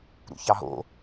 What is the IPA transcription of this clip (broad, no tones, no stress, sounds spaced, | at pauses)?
ɾ ṵ ç ɑ ɦ o̰